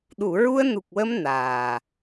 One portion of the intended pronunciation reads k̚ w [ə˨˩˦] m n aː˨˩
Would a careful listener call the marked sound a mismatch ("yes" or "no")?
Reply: yes